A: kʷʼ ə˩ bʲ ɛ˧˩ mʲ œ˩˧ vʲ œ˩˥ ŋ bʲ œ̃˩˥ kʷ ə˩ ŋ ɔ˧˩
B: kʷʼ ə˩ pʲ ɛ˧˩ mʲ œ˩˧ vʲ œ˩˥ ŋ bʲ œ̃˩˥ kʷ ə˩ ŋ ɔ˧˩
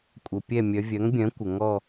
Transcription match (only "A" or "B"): B